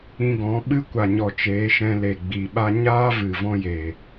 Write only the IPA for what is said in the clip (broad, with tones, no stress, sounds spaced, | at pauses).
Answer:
ĩ˧ ɡ ɔ̃˨˦ ɓ ɨ˦ kʷ a˨ ɲ ɔ˨ t͡ʃ eː˨˦ ʃ ɛ̃˧ l e˨ ɡ͡b i˨ ɓ a˦ ɲ aː˦ v ɨ˨ v ɔ̃˦ j e˨